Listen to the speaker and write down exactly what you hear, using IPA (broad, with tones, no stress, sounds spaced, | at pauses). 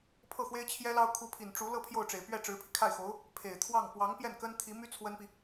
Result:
pʰ ɤ˥˩ x w e˥ ɪ̯ t͡ɕʰ j ɛ˥ l ɑ˥ ʊ̯ kʰ u˧˥ pʰ i˨˩ n ʈ͡ʂ u˧˥ l ɤ˥˧ pʰ j o˥˩ ʊ̯ ʈ͡ʂ e˨˩ ɪ̯ p ɥ ɛ˥˩ ʈ͡ʂ ɻ̩˧˥ pʰ i˧ kʰ a˥˩ ɪ̯ x o˧˥ ʊ̯ | pʰ e˨˩ ɪ̯ t̪ʰ w ɑ˥˩ ŋ p w ɑ˧˥ ŋ p j ɛ˥˩ n k ə˥ n t̪ʰ i˧˥ m y˥ t͡sʰ w ə˥ n p i˨